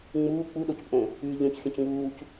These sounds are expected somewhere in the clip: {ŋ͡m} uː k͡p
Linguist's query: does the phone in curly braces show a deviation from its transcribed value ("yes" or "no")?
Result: no